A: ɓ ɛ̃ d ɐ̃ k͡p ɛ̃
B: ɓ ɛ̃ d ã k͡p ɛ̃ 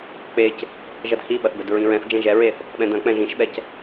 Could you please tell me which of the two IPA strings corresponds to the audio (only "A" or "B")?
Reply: A